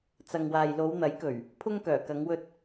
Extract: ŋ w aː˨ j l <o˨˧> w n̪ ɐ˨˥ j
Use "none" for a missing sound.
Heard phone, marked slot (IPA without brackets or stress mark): o˨˧